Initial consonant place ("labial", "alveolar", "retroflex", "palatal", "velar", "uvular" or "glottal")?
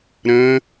alveolar